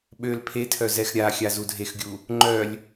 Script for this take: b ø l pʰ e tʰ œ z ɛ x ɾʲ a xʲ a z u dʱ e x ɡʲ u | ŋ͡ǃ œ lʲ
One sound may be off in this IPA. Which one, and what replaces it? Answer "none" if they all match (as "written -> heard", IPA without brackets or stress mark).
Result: b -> ɓ